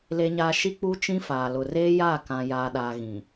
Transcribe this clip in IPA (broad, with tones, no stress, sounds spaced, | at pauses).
l e˨ ɲ aː˨ ʃ i˦ k͡p u˦ t͡ʃ ĩ˦ f aː˨ l ʊ˨ r eː˦ j aː˦˨ k ã˨ j aː˨ ɗ aː˨ ɣ ĩ˨